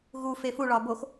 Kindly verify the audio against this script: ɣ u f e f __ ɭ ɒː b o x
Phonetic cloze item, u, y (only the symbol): u